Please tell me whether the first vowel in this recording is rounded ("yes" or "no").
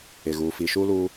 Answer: no